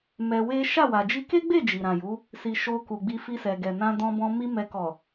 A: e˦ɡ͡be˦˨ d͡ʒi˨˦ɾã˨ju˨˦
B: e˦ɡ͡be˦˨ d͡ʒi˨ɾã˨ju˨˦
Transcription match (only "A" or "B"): B